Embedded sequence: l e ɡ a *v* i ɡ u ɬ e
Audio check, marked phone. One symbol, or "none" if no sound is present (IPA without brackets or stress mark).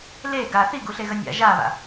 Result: θ